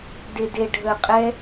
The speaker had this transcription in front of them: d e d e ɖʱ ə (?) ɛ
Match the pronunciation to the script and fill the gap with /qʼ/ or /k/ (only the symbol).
qʼ